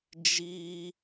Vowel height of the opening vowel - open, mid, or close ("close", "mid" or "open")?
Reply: close